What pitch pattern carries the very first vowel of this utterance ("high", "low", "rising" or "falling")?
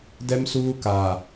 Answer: high